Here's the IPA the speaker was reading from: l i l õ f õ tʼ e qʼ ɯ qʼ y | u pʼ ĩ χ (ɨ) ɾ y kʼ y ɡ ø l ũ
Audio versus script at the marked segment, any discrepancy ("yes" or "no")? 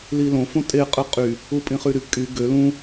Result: yes